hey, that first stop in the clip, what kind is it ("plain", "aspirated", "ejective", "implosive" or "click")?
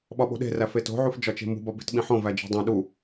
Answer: implosive